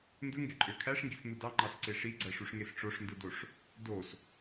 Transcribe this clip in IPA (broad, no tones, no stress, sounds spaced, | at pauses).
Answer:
n d ɯ ŋ ɡ e ǃʼ ø kʰ æ ʂ ŋ ɡ i s n̪ u d ɑ ŋ͡ǃ ɑ s ǀ e ʂ i ɡ͡ǀ æ ʂ u ʂ ŋ e s ʈ͡ʂ o ʂ n d ɯ d o ʂ | d o s